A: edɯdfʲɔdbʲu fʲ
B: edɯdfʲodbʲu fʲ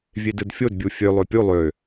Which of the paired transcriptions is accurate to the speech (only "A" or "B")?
B